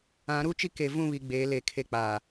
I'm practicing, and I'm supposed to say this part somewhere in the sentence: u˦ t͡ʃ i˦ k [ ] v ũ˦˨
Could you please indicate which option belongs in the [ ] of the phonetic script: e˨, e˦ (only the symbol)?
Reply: e˨